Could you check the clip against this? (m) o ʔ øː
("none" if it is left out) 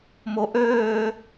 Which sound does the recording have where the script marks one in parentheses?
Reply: m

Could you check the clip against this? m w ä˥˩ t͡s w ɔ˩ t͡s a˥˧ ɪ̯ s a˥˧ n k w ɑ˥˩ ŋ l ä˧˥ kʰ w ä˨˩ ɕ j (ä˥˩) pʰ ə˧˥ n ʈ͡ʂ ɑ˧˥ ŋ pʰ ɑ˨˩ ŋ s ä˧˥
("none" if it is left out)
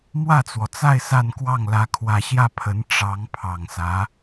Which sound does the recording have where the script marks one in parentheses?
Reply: ä˥˩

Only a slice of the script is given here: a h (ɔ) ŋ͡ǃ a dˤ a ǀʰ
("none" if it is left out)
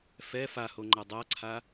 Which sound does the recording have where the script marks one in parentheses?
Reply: o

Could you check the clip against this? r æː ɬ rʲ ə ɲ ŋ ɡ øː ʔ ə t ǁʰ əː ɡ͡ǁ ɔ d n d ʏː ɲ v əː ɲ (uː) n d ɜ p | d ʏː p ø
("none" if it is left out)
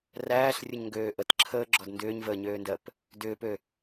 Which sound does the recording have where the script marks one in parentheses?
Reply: øː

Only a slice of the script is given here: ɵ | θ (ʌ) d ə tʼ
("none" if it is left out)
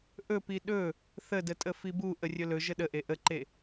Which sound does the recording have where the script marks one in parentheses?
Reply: ə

